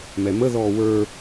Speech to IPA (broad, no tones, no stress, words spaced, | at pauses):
mɛmə ðɔːwə˞